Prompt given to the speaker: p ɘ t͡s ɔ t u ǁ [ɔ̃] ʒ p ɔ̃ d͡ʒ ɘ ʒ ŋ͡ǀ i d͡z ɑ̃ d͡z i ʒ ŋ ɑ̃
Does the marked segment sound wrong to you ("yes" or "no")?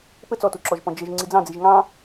yes